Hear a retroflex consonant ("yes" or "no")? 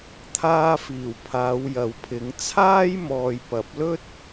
no